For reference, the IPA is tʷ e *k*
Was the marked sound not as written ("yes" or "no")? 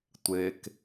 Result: no